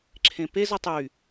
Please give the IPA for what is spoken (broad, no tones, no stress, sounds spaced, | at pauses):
ǁʰ ẽ p e z ɔ tˤ y